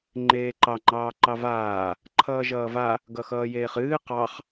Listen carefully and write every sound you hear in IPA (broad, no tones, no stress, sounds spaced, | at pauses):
ŋ͡ǃ eː ǃ ɑ ŋ͡ǃ ɑː ǃ ɑ v aː | ǃʰ ʌː ʒ ʌː v a | ɡ ʌ x ʌː j eː χ ɨː q ɑ χ